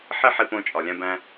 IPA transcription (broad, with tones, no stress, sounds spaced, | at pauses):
ħ i˥ ħ i˧ p õ˧ t͡ʃʼ ɒ˩ lʲ æ̃˧ b æ̃˧